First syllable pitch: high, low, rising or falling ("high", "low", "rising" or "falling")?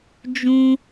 high